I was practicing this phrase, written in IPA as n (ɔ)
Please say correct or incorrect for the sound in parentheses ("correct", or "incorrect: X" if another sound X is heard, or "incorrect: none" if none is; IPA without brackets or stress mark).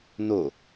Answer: incorrect: o